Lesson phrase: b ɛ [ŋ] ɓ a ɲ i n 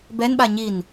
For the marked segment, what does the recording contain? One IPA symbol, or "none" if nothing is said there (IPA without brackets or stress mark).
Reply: n